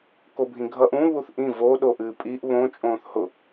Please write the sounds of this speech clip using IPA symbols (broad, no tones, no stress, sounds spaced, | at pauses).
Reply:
k o bʱ ĩ ɡʱ ʌ ʔ ũ β u θ ʔ ĩ v o ɗ o ʔ ɨː pʼ i ʔ β õ t͡ʃʼ õː θ h ʊ